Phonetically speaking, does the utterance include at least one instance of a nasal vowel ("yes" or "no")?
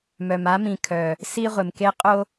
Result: yes